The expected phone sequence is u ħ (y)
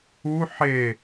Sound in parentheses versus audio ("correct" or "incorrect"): incorrect